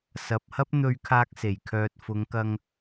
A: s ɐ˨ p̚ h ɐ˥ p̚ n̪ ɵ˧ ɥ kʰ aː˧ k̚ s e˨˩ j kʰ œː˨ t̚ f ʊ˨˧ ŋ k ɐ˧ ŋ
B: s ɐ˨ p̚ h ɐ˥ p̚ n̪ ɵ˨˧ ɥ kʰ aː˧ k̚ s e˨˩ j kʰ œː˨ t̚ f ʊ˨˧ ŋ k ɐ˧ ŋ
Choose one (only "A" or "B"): A